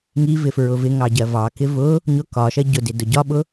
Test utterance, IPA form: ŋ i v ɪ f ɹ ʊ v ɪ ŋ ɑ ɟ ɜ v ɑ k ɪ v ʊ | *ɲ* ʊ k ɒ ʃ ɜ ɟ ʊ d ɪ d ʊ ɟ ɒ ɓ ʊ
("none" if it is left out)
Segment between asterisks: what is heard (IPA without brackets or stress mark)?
ɲ